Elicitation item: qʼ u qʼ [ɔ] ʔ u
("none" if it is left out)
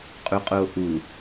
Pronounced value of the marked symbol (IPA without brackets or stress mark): o